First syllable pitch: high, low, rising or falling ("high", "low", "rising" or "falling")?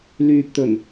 low